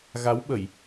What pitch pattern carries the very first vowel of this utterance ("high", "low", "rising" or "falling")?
rising